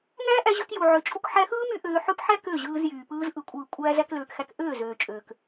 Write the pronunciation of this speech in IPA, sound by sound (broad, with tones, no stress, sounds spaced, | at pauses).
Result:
ŋ æː˦ ʔ æ˧ ʑ ø˧ k j u˨ ʕ ø˨˦ t͡ʃʼ u˧ k ħ æ˧ x ɯː˦ m y˦ ʔ øː˧ ħ ø˦ p ħ æ˦ k ø˦˨ ʑ ɯː˧ z j yː˨ p ɯː˧ z ʔ ɯ˨ kʷʼ ɯː˨ kʷʼ æː˧ z æ˧ k l øː˨ k x æ˧ k ʔ øː˦˨ z øː˨ t͡ʃʼ øː˨ k